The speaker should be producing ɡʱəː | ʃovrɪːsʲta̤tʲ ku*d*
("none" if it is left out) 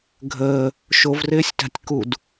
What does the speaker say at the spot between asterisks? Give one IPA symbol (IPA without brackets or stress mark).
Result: d